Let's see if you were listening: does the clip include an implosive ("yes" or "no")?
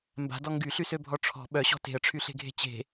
yes